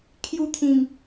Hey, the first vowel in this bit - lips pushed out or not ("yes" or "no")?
yes